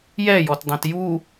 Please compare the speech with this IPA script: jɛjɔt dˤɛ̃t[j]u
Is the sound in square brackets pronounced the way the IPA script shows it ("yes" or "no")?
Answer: yes